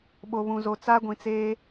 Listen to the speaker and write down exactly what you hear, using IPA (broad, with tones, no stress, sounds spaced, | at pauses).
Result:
ɓ o˨ β ũ˨ z o˨ t͡s a˦ ɡʷ ĩ˨ t͡s eː˦